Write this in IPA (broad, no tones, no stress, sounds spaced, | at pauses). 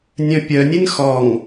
nʲ œ̃ pʲ œ nʲ e n x ɔ ŋ